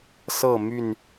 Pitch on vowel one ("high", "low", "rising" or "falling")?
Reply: falling